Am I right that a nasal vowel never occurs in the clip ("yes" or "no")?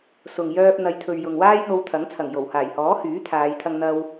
yes